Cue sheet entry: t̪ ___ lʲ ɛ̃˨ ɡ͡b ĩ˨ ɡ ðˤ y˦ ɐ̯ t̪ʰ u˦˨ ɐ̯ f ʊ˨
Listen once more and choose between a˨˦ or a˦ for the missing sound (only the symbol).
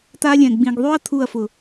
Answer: a˦